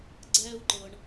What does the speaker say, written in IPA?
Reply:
ɡ͡ǀ ɛː˦ u̯ ǃ ɤ˨ ɳ

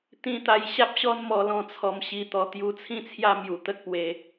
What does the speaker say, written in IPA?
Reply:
t̪ ĩ˧ t̪ a˧ j ɕ a˦ p̚ ɕ ɔ˦ n m ɔ˧ l ɔ̃˧ t͡sʰ ɔ˧ m ɕ i˧ t̪ ɔ˧ t̪ j u˧ t͡sʰ ĩ˦ t͡sʰ j a˦ m j u˧ t̪ ə˦ k̚ p w e˧

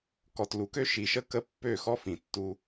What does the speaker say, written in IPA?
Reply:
k ɔ˨ t l u˨ k ø˦ ʃ i˨ ʃ ə˦ k ə˦ pː ø˦˨ x ɔ˦ f ĩ˨ tː u˦

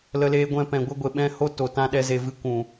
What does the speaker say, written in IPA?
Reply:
l ə˦ l eː˦ ɡʷ ɛ̃˦ p ɛ̃˧ ɡʷ ə˦ ɡʷ e˧ ɓ ɛ̃˦ h o˦ t o˨ t ã˧ ɗ ɛ˧ z e˨ v ɨ˧ kʷ ũ˨

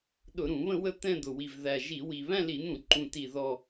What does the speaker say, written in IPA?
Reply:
ɗ ʊ˧˩˧ ɾ ũ˧˩˧ β ə̃˥˧ w ə˥˧ t̪ ɛ̃˥˧ d̪ ʊ˨˩ w i˨˩ v ð æ˨˩ ʒ i˧˩˧ w i˨˩ β æ̃˥˧ l i˧˩˧ n̪ ũ˧˩˧ ǃ ũ˨˩ t i˨˩ ð ɔ˨˩

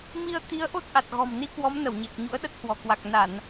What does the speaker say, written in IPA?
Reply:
m i˧ ə̯ t̪ i˨˦ ə̯ ʔ o˦˥ t̚ ʔ a˨˩ t̚ ɣ ɔ̤˨˩ m n i˧ k w ɔ˨˦ m n ə˧˩ w ɲ e˨˩ k̚ ɲ ṵ˧˥ ə̯ ɗ ə˦˥ t̚ h w ɔ̤˨˩ k w a˨˩ k̚ n a˧˩˨ n

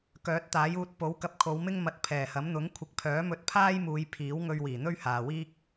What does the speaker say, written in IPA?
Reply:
k œː˨˥ t̚ t̪ aː˨˥ j uː˧ t̚ p o˨˥ w k ɐ˧ p̚ kʰ o˨˧ w m ɪ˥ ŋ m ɐ˨˥ t̚ pʰ ɛː˨˩ h ɐ˨˥ m n̪ ʊ˨˥ ŋ kʷʰ ɪ˨˥ k̚ pʰ œː˨˥ m ɵ˧ t̚ pʰ aː˥ j m uː˨˧ j pʰ iː˨˥ w ŋ ɵ˧ ɥ w iː˨˩ n̪ ɵ˥ ɥ h aː˨ w iː˥ k̚

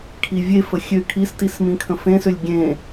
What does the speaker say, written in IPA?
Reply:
kʰ i vʲ e f ə xʲ ø kʰ i s t i s m ĩ kʰ ə̃ f ẽ s ø lʲ ɡʲ ẽ

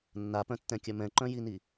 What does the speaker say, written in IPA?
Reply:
nː a p œ̃ tː ɛ̃ kʲ œ m ɛ̃ ǃ œ̃ j i n i

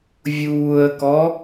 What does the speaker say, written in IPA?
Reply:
vʲ uː ə̯ k ɔ

